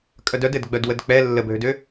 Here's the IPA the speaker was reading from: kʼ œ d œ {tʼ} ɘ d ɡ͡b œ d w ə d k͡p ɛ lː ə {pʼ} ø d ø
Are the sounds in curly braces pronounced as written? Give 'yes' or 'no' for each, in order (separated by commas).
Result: no, no